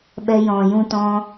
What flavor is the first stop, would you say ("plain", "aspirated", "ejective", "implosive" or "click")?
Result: implosive